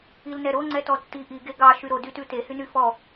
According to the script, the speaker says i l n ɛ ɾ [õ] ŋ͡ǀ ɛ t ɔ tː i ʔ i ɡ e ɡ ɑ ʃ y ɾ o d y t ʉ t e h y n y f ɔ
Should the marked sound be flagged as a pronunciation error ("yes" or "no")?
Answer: yes